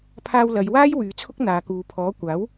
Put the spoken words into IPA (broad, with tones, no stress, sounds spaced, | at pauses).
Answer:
pʰ aː˧ w l ɐ˨˧ j w aː˥ j w yː˨˧ t͡sʰ ʊ˥ k̚ n̪ aː˨˧ k uː˨˧ pʰ ɔː˨˥ kʷ aː˨˥ w